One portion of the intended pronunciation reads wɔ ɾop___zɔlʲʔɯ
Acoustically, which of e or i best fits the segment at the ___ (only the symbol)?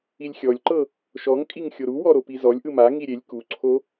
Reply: i